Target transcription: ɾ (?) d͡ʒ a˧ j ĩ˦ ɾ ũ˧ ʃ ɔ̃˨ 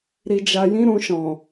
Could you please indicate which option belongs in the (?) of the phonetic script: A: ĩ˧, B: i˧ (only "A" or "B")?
B